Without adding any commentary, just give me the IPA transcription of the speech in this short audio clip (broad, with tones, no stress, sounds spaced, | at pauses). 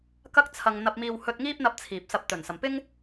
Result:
k ɐ˥ k̚ t͡sʰ ɐ˧ ŋ n̪ ɐ˧ p̚ m iː˧ w h ɵ˧ t̚ ŋ iː˥ p̚ n̪ ɐ˧ p̚ t͡sʰ iː˨ p̚ s ɐ˧ p̚ t̪ ɵ˨˩ n s ɐ˨ m p ɪ˥ ŋ